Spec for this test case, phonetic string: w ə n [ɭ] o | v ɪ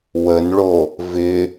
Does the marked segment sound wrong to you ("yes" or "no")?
no